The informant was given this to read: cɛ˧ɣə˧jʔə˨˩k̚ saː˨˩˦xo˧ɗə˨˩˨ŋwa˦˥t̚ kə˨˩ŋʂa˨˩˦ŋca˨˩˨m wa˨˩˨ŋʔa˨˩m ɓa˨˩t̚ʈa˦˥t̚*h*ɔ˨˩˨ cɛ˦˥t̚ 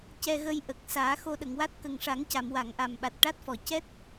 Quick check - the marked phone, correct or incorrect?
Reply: incorrect